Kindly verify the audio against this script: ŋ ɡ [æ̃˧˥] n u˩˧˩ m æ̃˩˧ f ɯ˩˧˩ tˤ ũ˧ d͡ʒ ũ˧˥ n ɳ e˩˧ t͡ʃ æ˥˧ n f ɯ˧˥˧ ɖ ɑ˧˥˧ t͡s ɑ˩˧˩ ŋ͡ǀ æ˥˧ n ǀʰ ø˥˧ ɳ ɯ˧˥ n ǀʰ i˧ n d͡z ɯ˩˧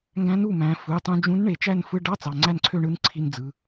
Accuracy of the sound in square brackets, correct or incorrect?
correct